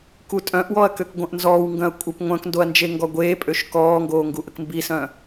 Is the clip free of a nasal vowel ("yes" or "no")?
no